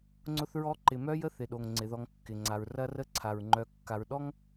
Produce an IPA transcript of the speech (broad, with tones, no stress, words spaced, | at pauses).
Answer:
ŋ͡ǀʊ˦θɹɔ˦ǃɪ˨ mœ˥jə˥θɪ˩ɗo˩ŋ ŋ͡ǀɪ˩ðɔ˨ŋkːɪ˩ŋ͡ǀa˩ɹ rɐ˦rə˦ǀʰa˩ɹ ŋ͡ǃœ˨ kːa˨ɹɗɔ˥ŋ